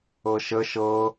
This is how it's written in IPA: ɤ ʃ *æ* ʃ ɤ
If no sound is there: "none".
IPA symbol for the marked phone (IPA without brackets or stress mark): ə